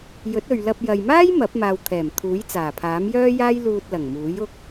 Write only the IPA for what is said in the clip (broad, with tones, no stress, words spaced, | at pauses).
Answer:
jɵ˨˥t̚ɵ˨ɥlɐ˧p̚ jɐ˨jmaː˥j mɐ˨˥p̚ maː˧w t̪ʰɛː˨˩m t̪ʰuː˨˥j t͡saː˨˩pʰaː˨˥mjœː˥jaː˥j luː˧t̚lɐ˨˩ŋmuː˨˥j ʊ˥k̚